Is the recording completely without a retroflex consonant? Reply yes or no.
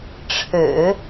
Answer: no